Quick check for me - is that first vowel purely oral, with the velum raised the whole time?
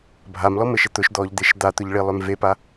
yes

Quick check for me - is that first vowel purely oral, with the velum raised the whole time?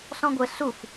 no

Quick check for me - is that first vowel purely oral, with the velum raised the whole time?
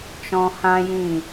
no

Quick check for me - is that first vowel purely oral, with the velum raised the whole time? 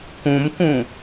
no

